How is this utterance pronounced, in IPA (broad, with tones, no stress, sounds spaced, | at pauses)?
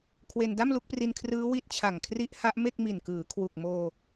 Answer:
kʰ w e˧ n d a˥˩ m l u˦˥ k̚ p r i˧ n kʰ r ɯː˦˥ w i˦˥ t̚ t͡ɕʰ a˨˩ ŋ kʰ r i˦˥ ʔ h a˦˥ ʔ m e˥˩ k̚ m i˨˩ n k ɯː˩˦ kʰ w u˨˩ k̚ m oː˧